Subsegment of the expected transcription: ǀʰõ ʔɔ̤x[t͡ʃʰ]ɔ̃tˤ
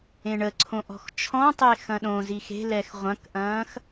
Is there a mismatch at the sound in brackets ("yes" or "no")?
no